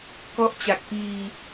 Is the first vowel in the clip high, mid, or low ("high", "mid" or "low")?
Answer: mid